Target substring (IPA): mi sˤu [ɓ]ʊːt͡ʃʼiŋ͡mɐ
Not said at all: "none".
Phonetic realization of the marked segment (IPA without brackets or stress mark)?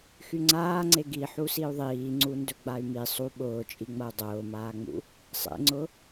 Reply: ɓ